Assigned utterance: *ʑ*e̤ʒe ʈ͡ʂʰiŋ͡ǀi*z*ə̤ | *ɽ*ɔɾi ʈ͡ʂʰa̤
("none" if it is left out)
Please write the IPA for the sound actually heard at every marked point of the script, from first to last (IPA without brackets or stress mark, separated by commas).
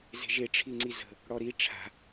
z, z, ɽ